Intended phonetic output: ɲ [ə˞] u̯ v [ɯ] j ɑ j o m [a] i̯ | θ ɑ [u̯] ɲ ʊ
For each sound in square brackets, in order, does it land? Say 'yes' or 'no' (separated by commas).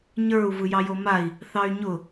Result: yes, yes, yes, no